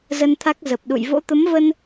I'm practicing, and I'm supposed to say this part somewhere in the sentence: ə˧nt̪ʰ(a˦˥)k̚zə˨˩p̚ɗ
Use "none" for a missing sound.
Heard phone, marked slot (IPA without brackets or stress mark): a˦˥